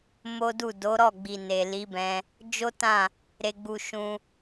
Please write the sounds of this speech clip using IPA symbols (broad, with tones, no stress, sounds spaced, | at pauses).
m o˦ d u˦˨ d o˨˦ ɾ ɔ˦˨ ɡ͡b i˨ n e˨ l i˨˦ b ɛ̃˧ | d͡ʒ o˦ t ã˦˨ | ɾ e˧ ɡ͡b u˧ ʃ ũ˦